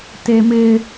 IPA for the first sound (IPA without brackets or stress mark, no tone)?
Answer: t